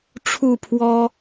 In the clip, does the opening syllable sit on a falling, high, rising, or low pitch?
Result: falling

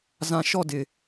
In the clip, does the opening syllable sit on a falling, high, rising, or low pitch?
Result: low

